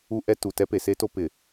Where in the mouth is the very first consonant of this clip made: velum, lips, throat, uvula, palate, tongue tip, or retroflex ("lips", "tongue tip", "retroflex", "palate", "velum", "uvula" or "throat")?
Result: throat